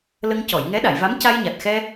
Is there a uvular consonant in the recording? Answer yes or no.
no